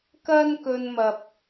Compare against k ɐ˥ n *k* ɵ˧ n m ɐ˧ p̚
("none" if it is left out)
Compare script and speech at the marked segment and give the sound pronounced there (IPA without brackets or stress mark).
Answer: k